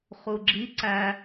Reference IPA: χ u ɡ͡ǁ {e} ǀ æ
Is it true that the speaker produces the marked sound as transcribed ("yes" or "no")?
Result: no